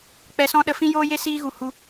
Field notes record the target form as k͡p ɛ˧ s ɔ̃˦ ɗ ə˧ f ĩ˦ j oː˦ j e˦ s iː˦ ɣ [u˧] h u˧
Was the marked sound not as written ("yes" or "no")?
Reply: no